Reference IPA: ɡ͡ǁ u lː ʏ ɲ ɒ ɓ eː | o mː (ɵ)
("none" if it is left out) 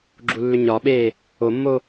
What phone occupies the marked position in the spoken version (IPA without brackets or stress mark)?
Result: o